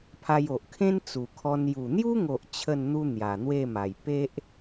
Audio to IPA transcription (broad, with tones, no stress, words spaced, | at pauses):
pʰa˧jo˨ʔkʰẽ˦n t͡su˨˩kʰɔ˧n ju˨˩n̪ju˦ŋo˨ʔ t͡ɕʰə˥˧nn̪u˦ n̪ja˨˩n̪we˥˧ma˨˩j pe˦ʔ